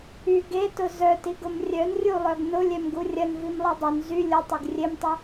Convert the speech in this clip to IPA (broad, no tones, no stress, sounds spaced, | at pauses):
y ɡ e t ʊ z œ t i ɡ ʊ m rʲ œ n rʲ u lˠ œ ɡ n ʊ lʲ ɛ m ɡ u rʲ ɐ n v i m lˠ i dˤ ʊ n z y lʲ ʊ tˤ ʊ ɡ rʲ e m tˤ œ